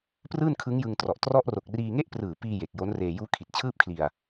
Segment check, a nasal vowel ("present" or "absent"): absent